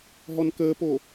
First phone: ɦ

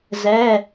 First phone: z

